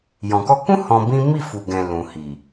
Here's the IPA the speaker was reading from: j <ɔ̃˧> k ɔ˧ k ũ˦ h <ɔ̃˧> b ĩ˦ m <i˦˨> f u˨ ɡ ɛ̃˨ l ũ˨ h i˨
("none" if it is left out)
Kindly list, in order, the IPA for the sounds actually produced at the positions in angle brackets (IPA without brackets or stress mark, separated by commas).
ɔ̃˨, ɔ̃˧, i˦˨